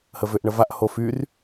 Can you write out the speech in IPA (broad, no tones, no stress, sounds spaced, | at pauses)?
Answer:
h ə v ʏ ʔ ɳ ə v a ʔ h o f y r